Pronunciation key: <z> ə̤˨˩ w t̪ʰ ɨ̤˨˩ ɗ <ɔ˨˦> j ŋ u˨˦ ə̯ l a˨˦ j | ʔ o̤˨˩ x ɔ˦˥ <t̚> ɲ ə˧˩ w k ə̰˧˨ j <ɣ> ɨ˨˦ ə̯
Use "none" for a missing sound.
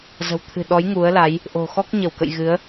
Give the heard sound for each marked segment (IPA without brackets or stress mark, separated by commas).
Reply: z, ɔ˨˦, k̚, ɣ